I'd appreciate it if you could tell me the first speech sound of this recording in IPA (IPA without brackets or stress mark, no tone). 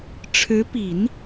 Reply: ʈ͡ʂʰ